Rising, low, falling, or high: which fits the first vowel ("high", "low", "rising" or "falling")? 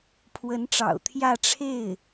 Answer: rising